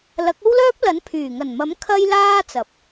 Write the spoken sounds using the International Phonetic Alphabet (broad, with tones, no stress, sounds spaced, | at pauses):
l ɐ˨˥ k̚ o˥ w l œː˥ p̚ l ɐ˨˥ n pʰ yː˨˩ ŋ ɐ˨˩ n m ɐ˨˥ m kʰ ɐ˥ j l aː˥ t͡s ɐ˨˥ p̚